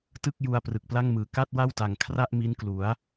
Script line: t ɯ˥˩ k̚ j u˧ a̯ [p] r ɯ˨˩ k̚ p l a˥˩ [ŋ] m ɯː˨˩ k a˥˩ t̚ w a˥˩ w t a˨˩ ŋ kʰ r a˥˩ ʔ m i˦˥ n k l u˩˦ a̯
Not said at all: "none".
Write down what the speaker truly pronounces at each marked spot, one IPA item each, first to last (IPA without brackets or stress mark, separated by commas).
p, ŋ